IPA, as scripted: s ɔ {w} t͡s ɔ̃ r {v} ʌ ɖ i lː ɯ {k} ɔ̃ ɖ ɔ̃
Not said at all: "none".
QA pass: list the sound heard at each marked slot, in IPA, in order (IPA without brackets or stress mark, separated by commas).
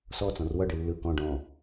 none, w, k